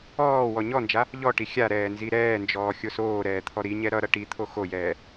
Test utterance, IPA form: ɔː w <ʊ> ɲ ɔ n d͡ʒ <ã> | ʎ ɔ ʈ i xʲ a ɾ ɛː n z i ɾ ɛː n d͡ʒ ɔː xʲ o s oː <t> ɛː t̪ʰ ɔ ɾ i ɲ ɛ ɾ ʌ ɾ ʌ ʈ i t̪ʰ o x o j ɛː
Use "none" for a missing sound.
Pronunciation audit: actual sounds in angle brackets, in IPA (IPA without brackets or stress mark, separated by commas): ɔ, a, ɾ